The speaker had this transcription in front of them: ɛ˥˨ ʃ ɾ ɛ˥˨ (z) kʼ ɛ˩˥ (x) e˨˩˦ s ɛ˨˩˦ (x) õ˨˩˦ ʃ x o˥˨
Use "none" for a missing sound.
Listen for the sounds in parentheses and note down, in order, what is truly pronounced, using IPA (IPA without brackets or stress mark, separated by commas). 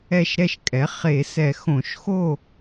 ʃ, χ, x